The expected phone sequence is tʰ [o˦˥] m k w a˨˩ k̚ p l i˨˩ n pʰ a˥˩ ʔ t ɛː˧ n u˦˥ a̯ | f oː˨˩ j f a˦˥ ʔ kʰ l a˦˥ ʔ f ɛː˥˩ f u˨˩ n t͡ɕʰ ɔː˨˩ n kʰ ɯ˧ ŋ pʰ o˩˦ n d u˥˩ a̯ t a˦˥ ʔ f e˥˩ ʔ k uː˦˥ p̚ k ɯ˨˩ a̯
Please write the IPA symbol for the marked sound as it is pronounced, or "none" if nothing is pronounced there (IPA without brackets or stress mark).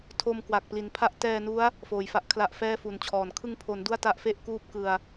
o˧